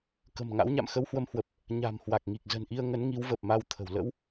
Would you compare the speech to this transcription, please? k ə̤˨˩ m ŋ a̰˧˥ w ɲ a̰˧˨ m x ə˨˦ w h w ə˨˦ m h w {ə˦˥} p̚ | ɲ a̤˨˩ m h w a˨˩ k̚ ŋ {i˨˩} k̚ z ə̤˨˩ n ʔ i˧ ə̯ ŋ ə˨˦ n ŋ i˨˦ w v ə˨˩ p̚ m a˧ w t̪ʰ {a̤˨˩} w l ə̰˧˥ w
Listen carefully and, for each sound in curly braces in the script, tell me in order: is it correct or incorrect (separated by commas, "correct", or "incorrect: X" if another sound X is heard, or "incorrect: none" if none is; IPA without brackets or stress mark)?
incorrect: ə˨˩, correct, incorrect: ə̤˨˩